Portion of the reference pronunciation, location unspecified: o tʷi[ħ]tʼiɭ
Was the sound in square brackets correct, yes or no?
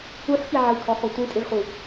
no